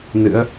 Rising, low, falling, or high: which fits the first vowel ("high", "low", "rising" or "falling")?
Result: rising